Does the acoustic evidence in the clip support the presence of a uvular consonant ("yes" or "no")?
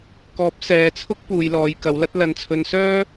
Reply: no